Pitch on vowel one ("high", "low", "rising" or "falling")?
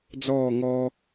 falling